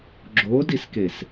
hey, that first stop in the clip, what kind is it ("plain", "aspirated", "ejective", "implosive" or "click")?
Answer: click